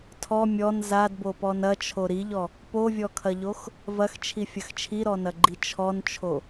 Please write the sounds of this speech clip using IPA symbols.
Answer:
tʰ ɔ mʲ ɔ n z a d b o p ɔ n ɐ t͡ʃʰ o ɾ i ʎ ɔ | p o vʲ ɔ kʰ ɐ ʎ o x | v ɐ x t͡ʃʰ i fʲ ɐ x t͡ʃʰ i ɾ ɔ n ɐ ɡ͡ǃ i t͡ʃʰ ɔ n t͡ʃʰ o

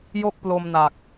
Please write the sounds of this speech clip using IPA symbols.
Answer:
j o˥˩ k̚ p l o˧ m n a˨˩ k̚

